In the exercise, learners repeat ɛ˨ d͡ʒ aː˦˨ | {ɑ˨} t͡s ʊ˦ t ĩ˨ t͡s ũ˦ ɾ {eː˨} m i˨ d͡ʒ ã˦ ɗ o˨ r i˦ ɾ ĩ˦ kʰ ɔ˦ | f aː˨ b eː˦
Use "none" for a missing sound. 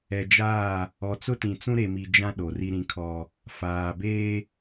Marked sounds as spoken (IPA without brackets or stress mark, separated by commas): ɔ˨, e˨